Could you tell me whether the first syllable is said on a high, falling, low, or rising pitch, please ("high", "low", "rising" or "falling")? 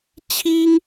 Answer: high